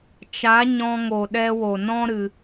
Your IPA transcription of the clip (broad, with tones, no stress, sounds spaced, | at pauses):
t͡ʃ a˨˦ ɲ ɔ̃˧ ŋ o˨ ɗ ɛ˧ w o˨ n ɔ̃˦ ɾ ɨ˧